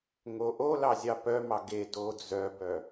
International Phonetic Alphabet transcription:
ŋ o ʔ o l ɑ zʲ ɑ p œ m ɑ ɡ e d o d͡z œ b œ

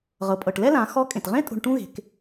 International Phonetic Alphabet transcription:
ʁ ɤ˩ pʼ ɤ˩ ʈ l ɛ˥ l ã˩˧ x ɔ˧˥ kʼ ẽ˩ t ʁ ẽ˥ tʼ o̤˧ ɳ ʈ ũ˥ ɣ e̤˩˧ k

